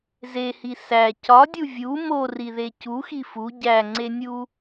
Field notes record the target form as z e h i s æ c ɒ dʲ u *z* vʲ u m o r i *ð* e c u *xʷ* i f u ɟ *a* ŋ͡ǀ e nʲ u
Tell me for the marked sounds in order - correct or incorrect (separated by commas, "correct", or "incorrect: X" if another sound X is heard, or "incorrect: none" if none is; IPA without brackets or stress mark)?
incorrect: none, correct, incorrect: x, incorrect: æ